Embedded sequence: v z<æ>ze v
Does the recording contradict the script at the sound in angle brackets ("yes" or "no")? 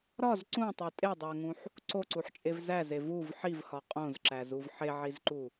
no